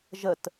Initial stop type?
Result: plain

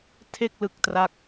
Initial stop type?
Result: aspirated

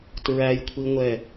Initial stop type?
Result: plain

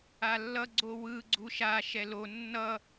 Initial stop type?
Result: click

